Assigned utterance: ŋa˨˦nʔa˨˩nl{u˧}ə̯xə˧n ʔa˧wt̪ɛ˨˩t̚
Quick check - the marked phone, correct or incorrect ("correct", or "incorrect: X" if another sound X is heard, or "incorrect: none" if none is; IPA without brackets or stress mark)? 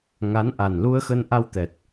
correct